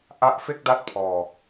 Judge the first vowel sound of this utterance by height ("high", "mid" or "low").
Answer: low